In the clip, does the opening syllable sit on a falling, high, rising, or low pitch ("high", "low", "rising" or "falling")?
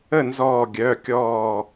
falling